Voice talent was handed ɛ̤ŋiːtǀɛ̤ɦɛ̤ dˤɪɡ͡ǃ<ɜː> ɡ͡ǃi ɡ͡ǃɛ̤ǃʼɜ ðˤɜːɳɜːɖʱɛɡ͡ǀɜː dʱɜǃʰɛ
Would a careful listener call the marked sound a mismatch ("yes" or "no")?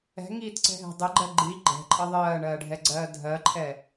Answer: yes